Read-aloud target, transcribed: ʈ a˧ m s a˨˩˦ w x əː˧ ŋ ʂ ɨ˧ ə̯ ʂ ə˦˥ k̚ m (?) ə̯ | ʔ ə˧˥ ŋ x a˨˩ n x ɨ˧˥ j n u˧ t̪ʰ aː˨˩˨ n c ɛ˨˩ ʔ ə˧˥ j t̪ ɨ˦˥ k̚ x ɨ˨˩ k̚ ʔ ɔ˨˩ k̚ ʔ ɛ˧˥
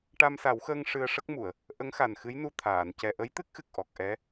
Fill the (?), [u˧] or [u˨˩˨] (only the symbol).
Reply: u˨˩˨